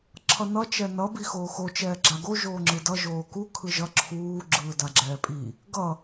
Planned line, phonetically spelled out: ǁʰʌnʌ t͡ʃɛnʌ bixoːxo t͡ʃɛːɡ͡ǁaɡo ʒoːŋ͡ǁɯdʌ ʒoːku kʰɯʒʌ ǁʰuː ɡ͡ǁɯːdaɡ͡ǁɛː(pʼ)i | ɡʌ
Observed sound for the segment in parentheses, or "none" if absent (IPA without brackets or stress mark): pʼ